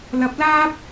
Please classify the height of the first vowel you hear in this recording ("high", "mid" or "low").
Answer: low